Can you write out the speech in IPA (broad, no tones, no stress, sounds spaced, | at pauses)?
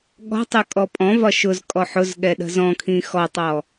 ɠ ɔ̤ tˤ ɨ kʼ ɔ pʼ ɔ̃ v ɒ ʃ ʊ z kʼ ɔ ħ ʊ z ɠ ɛ ɗ ə̤ z ɔ̃ kʰ ĩ x ɔ tˤ ɔ